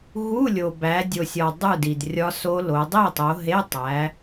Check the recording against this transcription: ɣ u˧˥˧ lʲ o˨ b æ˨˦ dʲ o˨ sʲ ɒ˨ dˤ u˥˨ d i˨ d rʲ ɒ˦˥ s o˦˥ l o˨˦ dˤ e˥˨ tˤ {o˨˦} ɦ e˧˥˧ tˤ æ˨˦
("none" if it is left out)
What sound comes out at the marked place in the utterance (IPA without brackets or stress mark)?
o˨˦